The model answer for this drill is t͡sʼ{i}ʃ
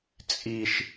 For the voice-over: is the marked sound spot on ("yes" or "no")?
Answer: yes